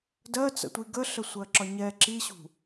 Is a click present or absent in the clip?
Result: present